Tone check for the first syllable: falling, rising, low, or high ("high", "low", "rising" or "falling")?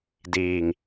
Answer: low